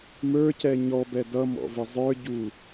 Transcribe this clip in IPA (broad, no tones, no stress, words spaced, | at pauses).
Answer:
mə˞cɛ ɲɔbɛ dʌmɔ̰vɪ zˤə˞ɟu